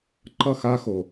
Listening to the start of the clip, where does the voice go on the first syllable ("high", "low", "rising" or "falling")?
falling